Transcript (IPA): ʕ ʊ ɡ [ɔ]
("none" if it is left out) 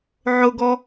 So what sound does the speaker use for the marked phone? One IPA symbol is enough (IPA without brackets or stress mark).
ɔ